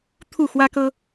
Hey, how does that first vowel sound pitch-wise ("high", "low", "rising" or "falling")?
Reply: falling